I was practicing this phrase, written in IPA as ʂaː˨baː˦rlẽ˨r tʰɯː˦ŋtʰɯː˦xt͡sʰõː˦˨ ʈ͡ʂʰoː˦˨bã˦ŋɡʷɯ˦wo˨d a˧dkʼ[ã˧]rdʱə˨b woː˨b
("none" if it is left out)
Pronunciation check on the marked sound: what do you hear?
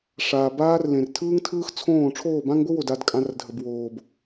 ã˧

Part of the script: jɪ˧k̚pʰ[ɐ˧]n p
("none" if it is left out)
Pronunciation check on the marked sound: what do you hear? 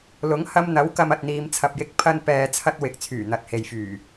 ɐ˧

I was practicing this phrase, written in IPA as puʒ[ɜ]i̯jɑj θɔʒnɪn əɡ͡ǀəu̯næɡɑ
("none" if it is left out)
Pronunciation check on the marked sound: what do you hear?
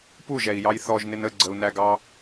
ɛ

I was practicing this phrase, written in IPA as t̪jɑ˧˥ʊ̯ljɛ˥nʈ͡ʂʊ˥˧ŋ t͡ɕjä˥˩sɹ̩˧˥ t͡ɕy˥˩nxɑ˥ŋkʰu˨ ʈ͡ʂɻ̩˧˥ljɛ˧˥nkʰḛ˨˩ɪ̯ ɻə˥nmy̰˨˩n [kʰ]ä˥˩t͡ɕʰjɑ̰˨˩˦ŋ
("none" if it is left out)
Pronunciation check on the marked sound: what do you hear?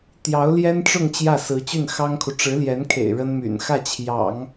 x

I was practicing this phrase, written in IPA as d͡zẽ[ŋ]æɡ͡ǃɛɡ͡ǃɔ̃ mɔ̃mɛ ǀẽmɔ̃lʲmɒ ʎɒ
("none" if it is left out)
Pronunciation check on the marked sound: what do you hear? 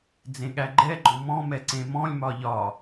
ɠ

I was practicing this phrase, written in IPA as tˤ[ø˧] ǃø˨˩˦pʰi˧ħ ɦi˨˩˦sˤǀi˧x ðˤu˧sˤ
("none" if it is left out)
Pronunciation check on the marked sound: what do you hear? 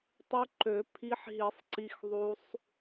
ø˧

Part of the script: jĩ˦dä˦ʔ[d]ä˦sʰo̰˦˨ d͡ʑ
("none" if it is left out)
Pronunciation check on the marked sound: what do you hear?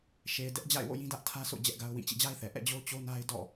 tʰ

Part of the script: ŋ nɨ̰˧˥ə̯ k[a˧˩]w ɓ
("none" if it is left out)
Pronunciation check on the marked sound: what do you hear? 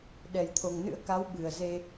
a˨˦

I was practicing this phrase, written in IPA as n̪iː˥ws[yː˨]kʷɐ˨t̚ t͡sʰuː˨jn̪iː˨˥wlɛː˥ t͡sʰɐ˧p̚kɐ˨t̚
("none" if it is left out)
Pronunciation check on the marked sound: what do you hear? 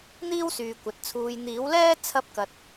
yː˨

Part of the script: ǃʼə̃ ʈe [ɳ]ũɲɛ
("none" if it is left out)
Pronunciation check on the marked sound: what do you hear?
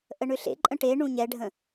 ɳ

